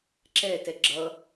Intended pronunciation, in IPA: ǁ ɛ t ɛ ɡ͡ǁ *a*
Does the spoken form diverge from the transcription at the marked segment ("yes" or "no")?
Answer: yes